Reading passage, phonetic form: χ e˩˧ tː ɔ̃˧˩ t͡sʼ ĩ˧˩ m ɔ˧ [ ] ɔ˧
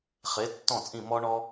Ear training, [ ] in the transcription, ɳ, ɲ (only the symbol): ɳ